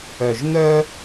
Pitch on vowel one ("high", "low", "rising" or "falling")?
low